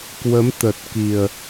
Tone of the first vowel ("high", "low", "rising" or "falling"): rising